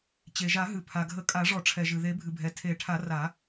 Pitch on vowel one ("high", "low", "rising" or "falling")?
low